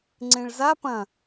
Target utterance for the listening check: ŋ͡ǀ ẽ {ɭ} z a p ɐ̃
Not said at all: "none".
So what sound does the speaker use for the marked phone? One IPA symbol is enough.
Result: ɭ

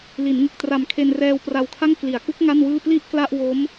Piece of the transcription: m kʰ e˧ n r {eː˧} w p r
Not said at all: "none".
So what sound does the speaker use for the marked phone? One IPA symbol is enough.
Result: ɛː˧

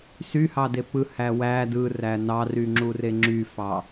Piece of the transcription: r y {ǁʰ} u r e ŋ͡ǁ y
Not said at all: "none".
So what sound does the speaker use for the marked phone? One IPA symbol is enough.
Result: ŋ͡ǁ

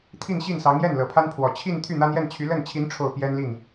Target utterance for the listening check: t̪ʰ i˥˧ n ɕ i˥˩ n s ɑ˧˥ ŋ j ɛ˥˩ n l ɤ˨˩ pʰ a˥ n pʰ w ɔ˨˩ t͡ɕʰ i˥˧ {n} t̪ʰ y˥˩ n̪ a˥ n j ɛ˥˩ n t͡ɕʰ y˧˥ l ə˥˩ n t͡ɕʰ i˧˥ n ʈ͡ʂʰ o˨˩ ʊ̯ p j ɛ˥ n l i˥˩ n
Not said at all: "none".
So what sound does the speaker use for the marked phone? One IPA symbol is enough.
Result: n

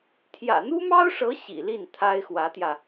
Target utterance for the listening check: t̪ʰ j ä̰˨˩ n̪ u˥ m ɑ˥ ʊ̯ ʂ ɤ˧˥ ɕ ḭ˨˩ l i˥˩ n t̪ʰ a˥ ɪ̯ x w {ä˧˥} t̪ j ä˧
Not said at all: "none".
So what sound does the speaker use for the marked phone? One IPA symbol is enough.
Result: ä˧˥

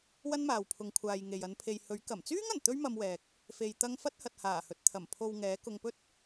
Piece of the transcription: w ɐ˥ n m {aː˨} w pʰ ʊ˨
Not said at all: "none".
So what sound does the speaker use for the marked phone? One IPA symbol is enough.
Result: aː˨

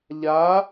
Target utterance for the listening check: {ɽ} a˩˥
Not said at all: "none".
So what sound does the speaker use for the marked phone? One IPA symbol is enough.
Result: ʎ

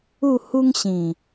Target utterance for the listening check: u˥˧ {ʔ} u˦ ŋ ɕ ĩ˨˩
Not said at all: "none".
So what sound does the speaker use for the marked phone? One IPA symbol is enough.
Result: h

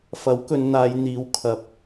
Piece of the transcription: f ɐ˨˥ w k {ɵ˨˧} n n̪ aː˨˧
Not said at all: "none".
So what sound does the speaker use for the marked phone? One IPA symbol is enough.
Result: ɵ˨˧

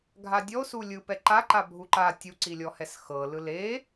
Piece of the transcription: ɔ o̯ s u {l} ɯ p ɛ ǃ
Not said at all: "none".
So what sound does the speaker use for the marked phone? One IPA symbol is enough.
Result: lʲ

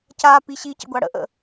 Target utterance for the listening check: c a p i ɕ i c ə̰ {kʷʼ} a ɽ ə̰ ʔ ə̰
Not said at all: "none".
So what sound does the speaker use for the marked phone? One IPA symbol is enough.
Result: ɡʷ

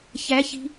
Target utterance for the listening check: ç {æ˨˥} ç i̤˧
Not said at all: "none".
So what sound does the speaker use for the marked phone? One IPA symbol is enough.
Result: æ˨˥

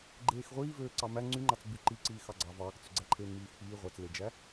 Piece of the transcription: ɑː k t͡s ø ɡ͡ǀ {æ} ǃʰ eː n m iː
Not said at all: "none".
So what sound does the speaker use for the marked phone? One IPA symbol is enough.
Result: æ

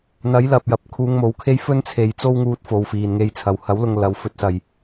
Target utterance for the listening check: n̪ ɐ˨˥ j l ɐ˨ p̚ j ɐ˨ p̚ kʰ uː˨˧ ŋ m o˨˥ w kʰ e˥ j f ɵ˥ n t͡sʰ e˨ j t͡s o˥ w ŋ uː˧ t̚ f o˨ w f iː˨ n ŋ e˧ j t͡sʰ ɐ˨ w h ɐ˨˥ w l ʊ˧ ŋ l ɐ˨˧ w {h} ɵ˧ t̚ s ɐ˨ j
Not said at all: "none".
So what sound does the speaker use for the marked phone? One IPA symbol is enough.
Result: f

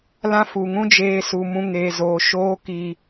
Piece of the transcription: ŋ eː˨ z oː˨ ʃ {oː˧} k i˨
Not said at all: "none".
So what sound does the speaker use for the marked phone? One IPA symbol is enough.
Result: oː˧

